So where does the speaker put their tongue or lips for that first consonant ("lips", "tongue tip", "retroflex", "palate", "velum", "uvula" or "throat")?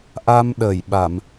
throat